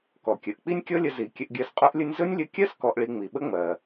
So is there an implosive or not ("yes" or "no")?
yes